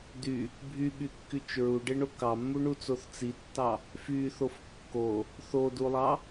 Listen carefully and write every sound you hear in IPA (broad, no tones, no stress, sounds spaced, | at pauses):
d y | bʱ y ɓ y kː y t͡ʃ ɹ u ɖ e ɳ o k ɑ mː u ɳ u t͡s o θ t͡s i tː ɑ | f y θ o f kː o | θ o d u lˠ ɑ